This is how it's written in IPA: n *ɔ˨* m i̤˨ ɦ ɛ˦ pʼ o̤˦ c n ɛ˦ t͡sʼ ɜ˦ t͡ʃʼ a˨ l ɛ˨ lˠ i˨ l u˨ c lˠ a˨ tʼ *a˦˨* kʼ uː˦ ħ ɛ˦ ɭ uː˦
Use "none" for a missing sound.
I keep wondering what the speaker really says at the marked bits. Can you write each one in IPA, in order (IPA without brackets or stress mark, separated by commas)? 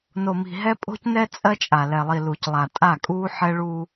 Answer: o˨, a˦˨